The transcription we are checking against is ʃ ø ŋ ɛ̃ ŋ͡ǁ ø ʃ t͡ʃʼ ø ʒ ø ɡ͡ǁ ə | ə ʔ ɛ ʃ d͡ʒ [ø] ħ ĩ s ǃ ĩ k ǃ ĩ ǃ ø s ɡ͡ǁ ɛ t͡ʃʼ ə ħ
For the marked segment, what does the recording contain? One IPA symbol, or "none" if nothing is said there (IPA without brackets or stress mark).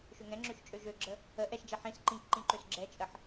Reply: ɛ